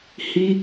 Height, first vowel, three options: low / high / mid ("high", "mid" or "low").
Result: high